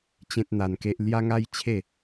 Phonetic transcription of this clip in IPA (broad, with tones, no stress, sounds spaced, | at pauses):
t͡ɕ ẽ˦ t̚ n̪ a˧ n k e˦ ʔ l j a˦ ŋ a˦ j t͡ɕʰ e˥˧